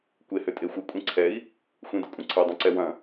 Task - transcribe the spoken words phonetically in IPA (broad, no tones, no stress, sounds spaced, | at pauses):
kʷ e h ʏ tʼ e xʷ ɘ kʷʼ ĩ ǀʰ ɛ i̯ | xʷ ĩ d ɘ kʷʼ ɐ̃ ǀʰ ɛ dˤ ĩ ǀ ɛ w ɐ̃